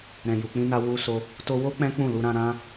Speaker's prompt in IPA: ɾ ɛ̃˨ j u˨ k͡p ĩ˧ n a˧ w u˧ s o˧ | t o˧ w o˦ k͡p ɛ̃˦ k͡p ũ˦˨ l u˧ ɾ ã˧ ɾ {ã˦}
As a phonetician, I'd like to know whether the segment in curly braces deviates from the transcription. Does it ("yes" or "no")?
yes